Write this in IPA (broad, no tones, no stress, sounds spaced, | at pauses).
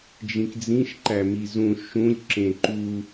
d͡ʒ ĩ k d͡z ĩ ʃ ǃ æ m i z ũ ʃ ũ lʲ ǁ ẽ ǃ u